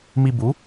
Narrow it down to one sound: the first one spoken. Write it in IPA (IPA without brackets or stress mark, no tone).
m